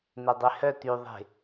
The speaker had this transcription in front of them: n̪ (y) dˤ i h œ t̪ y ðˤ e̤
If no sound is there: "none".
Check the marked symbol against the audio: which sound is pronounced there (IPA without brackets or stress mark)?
e